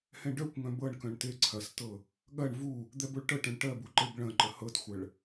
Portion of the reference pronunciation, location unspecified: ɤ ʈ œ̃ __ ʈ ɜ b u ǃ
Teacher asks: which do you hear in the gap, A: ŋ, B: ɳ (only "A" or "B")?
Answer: B